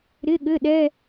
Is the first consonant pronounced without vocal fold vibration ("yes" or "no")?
no